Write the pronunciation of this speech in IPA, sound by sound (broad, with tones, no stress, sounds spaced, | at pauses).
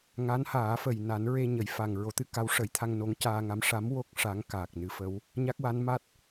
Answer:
ŋ a˧˥ n h aː˨˩˦ f ə˨˩ j n a˨˩˦ n ɹ e˧ ɲ ə˨˩˦ j f a˨˩ ŋ ɹ o˨˩˦ t̪ ɨ˧ k a˧˥ w ʂ ə˨˩˦ j t̪ʰ a˧ ŋ n o˧˥ ŋ c aː˧ ŋ a˧˥ m ʂ a˧˥ m w o˦˥ k̚ ʂ a˧˥ ŋ k aː˨˩ k̚ n ɨ˧˥ f ə˧˥ w | ɲ a˦˥ k̚ w a˧˥ n m a˦˥ t̚